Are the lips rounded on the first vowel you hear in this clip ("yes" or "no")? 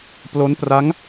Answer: yes